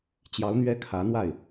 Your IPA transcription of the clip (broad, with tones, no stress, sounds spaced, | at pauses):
t͡ɕ j ɑ˧˥ ʊ̯ n̪ ɥ ɛ˥ kʰ ä˧˥ n̪ w a˥˩ ɪ̯